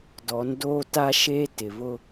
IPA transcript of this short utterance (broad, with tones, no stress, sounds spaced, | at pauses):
d ɔ˨˦ n d oː˦ t a˦ ʃ eː˦ t ɪ˨ β ʊ˦